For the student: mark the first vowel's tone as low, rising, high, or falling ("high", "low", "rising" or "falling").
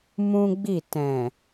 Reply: high